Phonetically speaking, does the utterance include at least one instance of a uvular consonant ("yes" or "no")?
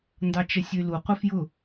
yes